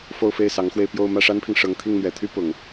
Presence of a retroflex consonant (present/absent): present